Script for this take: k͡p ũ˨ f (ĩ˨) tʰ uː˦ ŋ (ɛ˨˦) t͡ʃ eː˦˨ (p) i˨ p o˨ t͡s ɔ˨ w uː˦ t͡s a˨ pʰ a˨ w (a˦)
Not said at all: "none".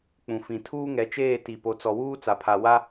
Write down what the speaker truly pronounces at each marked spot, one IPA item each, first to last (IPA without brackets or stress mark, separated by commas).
ĩ˨, ɛ˨˦, t, a˦